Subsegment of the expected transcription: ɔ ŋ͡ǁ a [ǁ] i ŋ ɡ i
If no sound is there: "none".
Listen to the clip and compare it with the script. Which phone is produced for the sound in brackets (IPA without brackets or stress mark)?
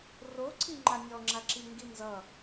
ǁ